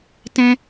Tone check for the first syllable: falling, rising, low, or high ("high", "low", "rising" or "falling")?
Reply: high